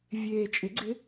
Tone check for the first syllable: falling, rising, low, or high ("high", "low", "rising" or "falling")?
low